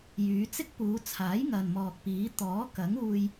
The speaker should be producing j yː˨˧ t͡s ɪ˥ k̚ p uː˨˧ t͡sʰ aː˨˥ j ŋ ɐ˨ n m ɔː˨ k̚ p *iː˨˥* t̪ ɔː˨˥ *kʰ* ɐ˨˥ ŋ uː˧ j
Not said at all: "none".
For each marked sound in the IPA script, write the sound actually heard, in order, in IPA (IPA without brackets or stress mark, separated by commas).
iː˨˥, k